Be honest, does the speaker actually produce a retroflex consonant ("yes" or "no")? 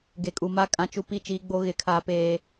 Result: no